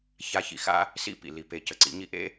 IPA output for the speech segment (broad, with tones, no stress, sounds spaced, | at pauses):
ç a˧ ç ḭ˨ x a̰˦ | s ḭ˦˨ p ḭ˨ l i˨ p e˨ c ə˨ ǀ ḭ˨˦ ɲ i˦ ʔ ḛ˦